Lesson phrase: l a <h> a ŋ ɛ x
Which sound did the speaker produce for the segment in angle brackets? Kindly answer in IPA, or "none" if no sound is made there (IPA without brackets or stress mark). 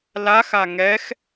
x